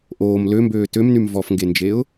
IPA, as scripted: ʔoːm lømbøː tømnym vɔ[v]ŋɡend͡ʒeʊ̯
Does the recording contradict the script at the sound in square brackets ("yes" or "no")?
yes